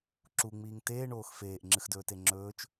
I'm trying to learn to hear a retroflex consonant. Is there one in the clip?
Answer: yes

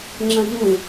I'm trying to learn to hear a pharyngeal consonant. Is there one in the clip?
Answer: no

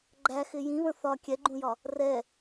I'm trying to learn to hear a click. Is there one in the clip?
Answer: yes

